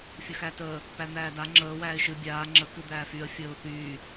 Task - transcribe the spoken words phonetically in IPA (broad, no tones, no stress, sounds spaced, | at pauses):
fʲ ə x æ t əː | p æ n̪ æː d a ŋ͡ǁ əː w æː ɪ̯ ʃ ɨ bʲ aː ŋ͡ǁ ə k ɨ d̪ æː f y ə̯ fʲ əː ʊ̯ θ yː